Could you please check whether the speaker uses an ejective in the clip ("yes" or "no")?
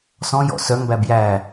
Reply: no